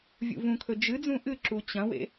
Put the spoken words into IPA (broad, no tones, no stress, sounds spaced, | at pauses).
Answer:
vʲ ṵ v ũ kʰ ɵ d͡ʒ ɨ d͡z ũ ʔ ɨ ǁ u t͡ɕ ɐ̃ w ḛ